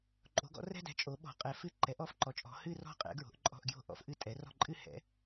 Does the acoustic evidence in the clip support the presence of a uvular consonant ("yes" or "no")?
yes